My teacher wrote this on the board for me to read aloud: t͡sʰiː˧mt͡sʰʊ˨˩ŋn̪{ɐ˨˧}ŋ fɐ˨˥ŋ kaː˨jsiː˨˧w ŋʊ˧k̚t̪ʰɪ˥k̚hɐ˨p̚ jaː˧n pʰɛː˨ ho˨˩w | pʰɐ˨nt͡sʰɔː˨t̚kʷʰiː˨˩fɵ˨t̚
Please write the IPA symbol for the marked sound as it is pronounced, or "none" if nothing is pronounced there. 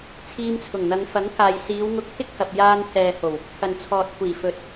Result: ɐ˨˧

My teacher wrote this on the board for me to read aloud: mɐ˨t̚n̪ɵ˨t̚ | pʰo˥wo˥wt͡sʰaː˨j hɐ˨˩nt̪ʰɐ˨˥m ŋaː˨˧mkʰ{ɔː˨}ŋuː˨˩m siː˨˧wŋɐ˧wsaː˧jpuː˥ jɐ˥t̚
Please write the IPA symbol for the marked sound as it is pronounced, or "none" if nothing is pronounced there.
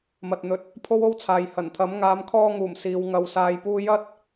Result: ɔː˧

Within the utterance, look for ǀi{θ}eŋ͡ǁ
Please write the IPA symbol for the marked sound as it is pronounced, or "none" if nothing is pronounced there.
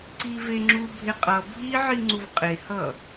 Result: v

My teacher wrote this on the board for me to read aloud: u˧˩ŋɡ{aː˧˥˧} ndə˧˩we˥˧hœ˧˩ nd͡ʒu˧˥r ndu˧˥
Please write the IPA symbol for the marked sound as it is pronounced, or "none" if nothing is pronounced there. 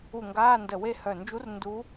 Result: aː˧˥˧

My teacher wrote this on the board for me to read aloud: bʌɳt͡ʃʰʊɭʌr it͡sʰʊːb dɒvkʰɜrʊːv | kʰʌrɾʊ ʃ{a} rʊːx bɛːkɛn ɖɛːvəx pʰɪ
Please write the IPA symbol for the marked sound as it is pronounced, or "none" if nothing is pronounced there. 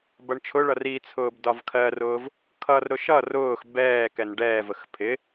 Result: ʌ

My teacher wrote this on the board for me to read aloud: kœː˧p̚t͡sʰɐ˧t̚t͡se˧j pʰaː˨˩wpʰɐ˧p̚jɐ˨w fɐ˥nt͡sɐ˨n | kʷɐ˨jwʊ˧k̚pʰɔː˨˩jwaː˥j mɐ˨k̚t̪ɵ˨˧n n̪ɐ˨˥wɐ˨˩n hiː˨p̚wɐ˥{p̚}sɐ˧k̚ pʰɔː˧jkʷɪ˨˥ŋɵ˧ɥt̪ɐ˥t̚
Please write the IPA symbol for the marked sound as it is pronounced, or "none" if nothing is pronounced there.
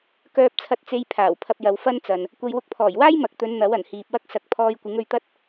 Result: k̚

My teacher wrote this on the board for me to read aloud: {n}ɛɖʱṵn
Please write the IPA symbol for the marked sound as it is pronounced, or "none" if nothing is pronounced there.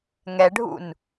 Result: ŋ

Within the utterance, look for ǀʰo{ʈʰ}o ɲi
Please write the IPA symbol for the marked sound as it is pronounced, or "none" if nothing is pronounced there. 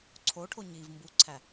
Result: ʈʰ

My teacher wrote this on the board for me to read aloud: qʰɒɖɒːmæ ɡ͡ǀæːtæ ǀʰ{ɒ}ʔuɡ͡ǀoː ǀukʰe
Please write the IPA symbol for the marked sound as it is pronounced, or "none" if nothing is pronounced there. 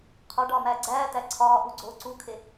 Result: ɒː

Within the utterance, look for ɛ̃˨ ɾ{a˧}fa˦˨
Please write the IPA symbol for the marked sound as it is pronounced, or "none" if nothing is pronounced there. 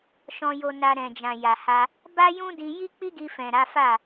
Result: a˨˦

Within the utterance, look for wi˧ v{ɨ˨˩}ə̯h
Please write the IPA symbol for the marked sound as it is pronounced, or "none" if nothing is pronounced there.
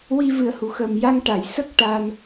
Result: ɨ˨˩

